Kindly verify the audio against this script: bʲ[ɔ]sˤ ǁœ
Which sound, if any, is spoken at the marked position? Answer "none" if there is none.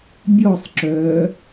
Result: ɔ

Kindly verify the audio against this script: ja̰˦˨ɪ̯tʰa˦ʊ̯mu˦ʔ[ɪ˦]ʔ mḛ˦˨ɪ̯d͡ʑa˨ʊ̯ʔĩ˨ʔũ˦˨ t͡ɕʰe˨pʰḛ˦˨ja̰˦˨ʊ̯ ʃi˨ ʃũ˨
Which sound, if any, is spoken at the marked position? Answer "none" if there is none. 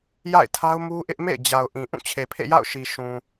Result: ɪ˦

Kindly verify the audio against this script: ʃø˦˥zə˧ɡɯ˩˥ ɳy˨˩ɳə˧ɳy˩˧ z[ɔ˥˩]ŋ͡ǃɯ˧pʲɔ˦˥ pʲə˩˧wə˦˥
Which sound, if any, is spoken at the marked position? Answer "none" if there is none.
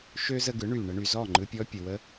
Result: ɔ˥˩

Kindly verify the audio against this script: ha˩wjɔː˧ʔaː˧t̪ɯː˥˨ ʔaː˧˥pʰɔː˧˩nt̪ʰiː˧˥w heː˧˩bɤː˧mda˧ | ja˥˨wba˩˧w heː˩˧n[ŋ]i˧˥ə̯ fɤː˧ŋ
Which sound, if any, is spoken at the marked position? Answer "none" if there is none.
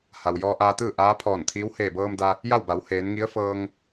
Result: ŋ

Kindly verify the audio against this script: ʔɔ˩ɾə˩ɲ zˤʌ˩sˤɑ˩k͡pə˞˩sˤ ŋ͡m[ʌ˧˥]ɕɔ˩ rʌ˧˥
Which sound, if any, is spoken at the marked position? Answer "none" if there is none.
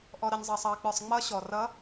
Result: ʌ˧˥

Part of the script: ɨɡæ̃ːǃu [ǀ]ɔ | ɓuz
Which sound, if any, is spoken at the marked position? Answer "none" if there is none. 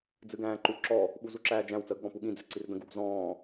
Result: ǁ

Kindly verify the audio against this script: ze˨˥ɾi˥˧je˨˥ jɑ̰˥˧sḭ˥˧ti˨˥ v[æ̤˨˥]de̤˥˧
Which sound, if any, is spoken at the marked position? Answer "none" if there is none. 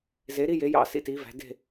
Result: æ̤˨˥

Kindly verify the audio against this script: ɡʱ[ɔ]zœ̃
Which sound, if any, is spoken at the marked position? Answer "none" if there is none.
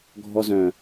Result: ɔ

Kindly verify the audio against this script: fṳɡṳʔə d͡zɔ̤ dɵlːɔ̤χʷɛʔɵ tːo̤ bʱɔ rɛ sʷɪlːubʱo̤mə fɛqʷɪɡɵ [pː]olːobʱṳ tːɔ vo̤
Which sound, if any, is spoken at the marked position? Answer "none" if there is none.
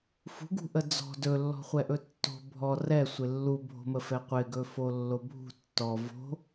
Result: f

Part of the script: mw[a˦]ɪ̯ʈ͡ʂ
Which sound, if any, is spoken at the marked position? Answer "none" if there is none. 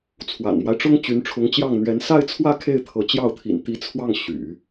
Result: a˦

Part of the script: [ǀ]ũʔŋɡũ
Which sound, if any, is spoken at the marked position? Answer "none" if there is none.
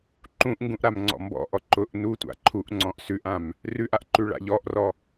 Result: ǃ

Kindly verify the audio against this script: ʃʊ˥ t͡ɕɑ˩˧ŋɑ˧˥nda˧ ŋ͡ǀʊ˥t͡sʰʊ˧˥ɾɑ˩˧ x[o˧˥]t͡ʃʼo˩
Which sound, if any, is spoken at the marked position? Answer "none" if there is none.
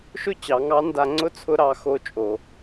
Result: o˧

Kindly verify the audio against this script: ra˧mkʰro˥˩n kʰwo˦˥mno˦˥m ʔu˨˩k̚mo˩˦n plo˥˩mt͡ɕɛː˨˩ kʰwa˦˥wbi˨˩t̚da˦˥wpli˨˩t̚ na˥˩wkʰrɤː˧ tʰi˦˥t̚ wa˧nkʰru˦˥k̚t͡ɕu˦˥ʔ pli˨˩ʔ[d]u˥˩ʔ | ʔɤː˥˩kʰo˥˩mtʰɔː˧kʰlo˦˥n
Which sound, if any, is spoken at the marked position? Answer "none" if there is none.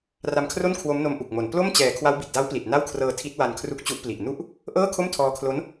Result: n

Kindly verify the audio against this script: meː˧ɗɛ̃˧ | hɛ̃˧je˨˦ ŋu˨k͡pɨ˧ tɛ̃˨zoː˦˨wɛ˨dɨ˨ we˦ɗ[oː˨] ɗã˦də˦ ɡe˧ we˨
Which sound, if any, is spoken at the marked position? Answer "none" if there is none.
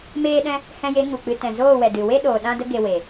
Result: oː˨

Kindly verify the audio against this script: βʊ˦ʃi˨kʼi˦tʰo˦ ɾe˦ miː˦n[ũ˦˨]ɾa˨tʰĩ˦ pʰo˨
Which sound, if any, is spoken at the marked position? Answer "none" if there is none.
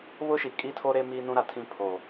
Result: ũ˦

